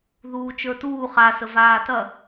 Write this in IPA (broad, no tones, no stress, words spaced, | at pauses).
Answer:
ðuːt͡ʃə˞tuː χasə vaːtɐ